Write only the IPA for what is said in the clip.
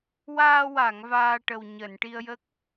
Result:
waː˧wa˨˩˨ŋ vaː˧ʈə˨˩w ɲəː˨˩˨nʈi˧ə̯jə˦˥k̚

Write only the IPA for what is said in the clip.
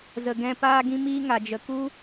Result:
zə˨ɡɛ̃˧ paː˧ɡĩ˧miː˧ ŋa˨d͡ʒə˨ku˦

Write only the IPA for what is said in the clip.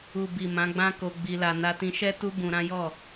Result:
u˨bi˨ mã˨˦ɡ͡bã˦ko˧ ɡ͡bi˧la˧ na˧tĩ˧ʃɛ˦ tu˦bũ˧ɾã˦jɔ˦˨

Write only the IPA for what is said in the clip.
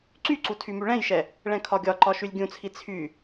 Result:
ǀyǀu tʰymyɭɛ̃jʃɛ | ɭɛ̃kʰɒɡʲɒǃɒ ʃylʲɡʲũt͡sʰi t͡sʰy

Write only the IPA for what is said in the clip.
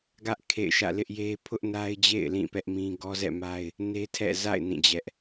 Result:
ɡä˦ʔ kʰḛ˦˨ɪ̯ʃä̰˦˨ lɪ˦ʔje˦ pʰʊ˦ʔna˦ɪ̯d͡ʑḛ˦˨ɪ̯ lĩ˦˨pɛ˦ʔmĩ˦ ɡɔ˦zɛ̰˦˨ma˦ɪ̯ | ne˦tʰɛ̰˦˨za̰˦˨ɪ̯ nĩ˦˨d͡ʑɛ˦ʔ

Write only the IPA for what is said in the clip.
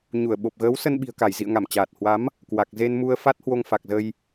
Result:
ɲu˧˩ə̯ɓo˨˩p̚ɣəː˨˦w sə˧nɓi̤˨˩ə̯ka˧˩jzḭ˧˨ə̯ ŋa˧˩mt͡ɕaː˨˩t̚hwa˨˦m | kwa˨˩k̚ze˧nmu˧ə̯ fa˦˥t̚hwo˧ŋfa˨˩k̚zə˧j

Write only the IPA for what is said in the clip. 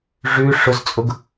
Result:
ʐʉ ʂʊzt͡sʼʊɡ

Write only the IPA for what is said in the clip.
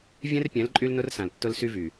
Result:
vʲɛ̃˦rpʲɛ̃˨˦l ǃʼy˦lnʊ˦rsã˨l tːʊ˦lsy˦vy˨

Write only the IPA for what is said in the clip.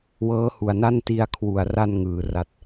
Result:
wɤː˦˥hu˨˩a̯na˥˩n ti˧a̯kʰwu˨˩a̯ra˧n ŋɯː˩˦ra˦˥t̚

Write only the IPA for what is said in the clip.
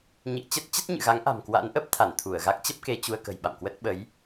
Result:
ɲḭ˧˨ə̯ t͡ɕə˦˥t̚t͡ɕə˦˥t̚ ɲɨ̰˧˨ɣa˨˦ŋ ʔa̤˨˩mkwa̰˧˥nʔə˦˥p̚t̪ʰa˧˩n t̪ʰu˧˩ə̯ɣa˦˥k̚ t͡ɕə˦˥p̚ke˧t͡ɕu˧ə̯kə̤˨˩j ɓa̰˧˨mkwə˦˥t̚ ɓə˨˦j

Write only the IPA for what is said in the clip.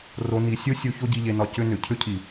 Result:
ro˧ni˧ sʲo˦sʲo˧ ço˦ɟi˧ʎe˧nɒ˧ cʏ˦nʏ˨ cʰʏ˦cʰi˨

